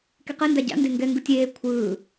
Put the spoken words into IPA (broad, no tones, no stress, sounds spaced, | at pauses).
k e q ɛ n d a ɟ a̰ n d e ŋ ɡ ɛ ŋ ɡ ɯ tʲ eː kʷʰ ɯː